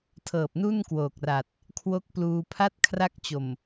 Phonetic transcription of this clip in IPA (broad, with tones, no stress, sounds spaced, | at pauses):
tʰ ɤː˨˩ p̚ n u˥˩ n k w oː˨˩ k̚ r a˨˩ t̚ | kʰ w o˦˥ k̚ p l uː˧ pʰ a˥˩ t̚ kʰ r a˦˥ k̚ t͡ɕ o˨˩ m